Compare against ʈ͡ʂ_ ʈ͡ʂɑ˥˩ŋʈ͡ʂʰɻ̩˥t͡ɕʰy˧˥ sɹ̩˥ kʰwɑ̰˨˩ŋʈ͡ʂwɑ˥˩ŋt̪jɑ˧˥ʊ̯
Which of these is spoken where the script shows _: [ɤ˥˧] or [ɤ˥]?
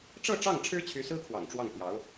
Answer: ɤ˥˧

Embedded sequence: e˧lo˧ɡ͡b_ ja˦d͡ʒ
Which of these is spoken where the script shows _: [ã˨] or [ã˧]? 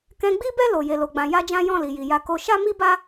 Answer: ã˧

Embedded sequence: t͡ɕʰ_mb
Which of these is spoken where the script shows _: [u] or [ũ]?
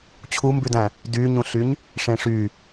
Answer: u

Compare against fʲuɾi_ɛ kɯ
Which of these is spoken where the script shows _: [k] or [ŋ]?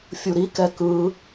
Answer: k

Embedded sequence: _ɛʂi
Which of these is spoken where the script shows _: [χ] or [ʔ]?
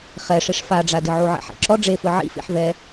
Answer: χ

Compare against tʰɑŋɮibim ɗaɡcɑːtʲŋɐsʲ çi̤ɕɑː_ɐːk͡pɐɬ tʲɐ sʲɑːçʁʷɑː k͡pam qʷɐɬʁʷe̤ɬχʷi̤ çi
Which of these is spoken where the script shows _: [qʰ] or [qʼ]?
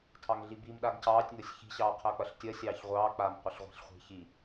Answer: qʰ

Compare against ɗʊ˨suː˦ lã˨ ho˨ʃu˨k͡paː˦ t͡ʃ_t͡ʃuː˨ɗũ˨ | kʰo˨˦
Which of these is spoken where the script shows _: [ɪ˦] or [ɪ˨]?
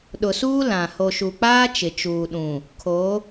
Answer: ɪ˨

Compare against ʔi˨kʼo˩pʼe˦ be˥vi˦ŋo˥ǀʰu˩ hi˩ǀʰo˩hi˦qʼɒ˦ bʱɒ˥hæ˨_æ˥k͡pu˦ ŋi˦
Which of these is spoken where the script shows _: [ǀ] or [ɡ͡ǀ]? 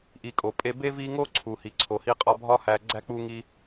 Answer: ɡ͡ǀ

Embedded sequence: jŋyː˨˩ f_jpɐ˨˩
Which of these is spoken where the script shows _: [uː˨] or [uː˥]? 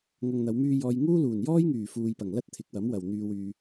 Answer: uː˨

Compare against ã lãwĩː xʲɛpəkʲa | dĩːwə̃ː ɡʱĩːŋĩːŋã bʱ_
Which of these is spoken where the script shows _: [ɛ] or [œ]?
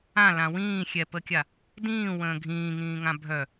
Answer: œ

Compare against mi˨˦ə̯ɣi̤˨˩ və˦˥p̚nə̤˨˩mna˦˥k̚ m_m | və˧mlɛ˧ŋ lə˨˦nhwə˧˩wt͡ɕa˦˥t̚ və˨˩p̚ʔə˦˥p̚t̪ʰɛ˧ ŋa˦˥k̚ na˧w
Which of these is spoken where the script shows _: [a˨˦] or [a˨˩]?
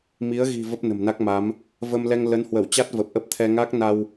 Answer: a˨˦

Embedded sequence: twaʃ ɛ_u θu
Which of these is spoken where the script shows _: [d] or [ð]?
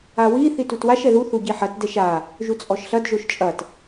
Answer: ð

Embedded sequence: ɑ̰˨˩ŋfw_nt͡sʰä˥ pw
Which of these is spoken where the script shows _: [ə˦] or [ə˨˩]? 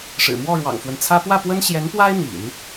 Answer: ə˦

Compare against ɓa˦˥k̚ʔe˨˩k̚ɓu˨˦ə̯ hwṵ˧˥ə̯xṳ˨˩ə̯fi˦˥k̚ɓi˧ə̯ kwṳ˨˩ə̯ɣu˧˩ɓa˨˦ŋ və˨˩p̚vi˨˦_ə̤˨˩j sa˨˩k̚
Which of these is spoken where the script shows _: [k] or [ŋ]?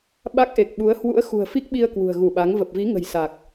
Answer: ŋ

